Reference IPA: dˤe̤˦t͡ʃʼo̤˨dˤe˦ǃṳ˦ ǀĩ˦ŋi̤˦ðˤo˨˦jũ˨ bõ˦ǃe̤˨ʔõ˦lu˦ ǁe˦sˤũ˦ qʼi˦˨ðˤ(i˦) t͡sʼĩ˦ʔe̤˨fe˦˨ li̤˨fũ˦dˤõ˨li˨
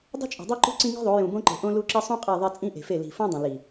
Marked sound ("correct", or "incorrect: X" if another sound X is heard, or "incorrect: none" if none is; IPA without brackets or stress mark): incorrect: e˦